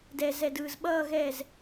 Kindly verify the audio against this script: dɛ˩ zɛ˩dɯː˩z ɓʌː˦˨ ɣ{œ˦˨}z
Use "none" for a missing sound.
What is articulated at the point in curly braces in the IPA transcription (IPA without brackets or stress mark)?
ɛ˦˨